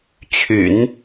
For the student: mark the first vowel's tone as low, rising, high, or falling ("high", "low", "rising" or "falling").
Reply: low